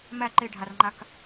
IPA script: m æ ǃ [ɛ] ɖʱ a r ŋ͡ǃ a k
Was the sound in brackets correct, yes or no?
no